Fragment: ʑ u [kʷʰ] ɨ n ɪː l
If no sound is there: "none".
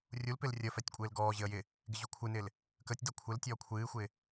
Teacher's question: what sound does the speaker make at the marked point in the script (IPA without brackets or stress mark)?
kʷʰ